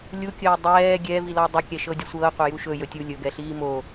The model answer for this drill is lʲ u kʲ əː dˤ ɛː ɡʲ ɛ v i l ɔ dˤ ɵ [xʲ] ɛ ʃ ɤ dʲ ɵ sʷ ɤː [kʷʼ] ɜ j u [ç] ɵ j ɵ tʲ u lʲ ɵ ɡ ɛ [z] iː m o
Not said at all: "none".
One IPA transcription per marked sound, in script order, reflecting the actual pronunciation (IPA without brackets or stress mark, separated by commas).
kʲ, qʷ, ʃ, ɬ